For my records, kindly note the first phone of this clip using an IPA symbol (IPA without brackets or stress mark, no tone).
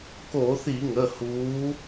k